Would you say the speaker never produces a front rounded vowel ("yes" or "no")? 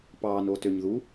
no